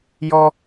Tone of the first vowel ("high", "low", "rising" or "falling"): high